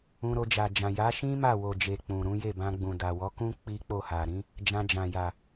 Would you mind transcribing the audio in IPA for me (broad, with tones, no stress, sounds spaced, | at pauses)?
ũ˧ ɾ o˧ d͡ʒ a˨ d͡ʒ ã˨ j a˨˦ ʃ ĩ˦ m a˦˨ w o˨ d͡ʒ e˨ k͡p ũ˨ ɾ ũ˨˦ j e˦˨ b ã˧ ɡ͡b ũ˨ d a˨ w ɔ˨˦ k ũ˦ k͡p i˦ k͡p o˦˨ h a˨ ɾ ĩ˨˦ | d͡ʒ ã˧ d͡ʒ ã˨ j a˨